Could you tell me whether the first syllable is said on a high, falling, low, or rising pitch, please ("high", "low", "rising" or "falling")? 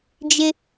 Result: high